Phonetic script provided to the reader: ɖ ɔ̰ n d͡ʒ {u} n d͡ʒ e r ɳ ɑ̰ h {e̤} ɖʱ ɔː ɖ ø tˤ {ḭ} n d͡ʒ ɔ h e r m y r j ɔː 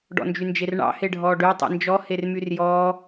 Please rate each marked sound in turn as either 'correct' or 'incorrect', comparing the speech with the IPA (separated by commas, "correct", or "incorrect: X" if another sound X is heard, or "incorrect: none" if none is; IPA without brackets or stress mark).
incorrect: y, incorrect: e, correct